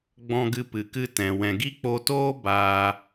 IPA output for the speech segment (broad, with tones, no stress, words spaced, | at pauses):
ɡ͡bɔ̃˧ɡɨ˧pɨ˨kɨ˧ tɛ̃˨ wɛ̃˨ɡi˦k͡po˧toː˦ baː˧